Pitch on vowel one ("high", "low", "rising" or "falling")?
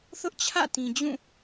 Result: high